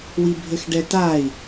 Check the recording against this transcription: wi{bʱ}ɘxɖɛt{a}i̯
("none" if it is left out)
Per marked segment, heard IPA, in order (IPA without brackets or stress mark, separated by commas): bʱ, a